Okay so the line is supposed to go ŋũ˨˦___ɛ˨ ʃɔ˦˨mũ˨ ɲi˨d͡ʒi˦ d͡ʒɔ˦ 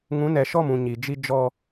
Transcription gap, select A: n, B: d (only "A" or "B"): A